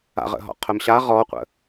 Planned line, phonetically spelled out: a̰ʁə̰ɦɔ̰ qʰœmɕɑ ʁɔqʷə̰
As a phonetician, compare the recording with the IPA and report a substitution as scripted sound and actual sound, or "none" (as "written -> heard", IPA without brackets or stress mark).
ɑ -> a